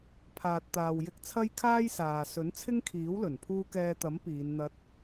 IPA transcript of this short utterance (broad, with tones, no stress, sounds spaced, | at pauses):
pʰ aː˨ t̚ t̪ aː˨ w j ɪ˧ k̚ t͡sʰ ɐ˥ j kʰ aː˥ j s aː˨ s ɵ˨˥ n t͡sʰ ɪ˥ ŋ kʰ iː˨˥ w l ɵ˨˩ n pʰ uː˥ k ɛː˧ t̪ ɐ˨˥ m p iː˨˧ n n̪ ɐ˧ t̚